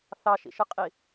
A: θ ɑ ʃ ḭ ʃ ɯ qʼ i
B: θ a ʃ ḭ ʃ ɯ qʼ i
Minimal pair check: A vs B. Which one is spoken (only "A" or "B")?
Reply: A